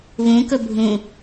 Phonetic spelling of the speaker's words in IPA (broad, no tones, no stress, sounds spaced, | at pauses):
β ũ k ɵ bʱ ũ